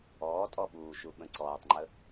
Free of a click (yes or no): no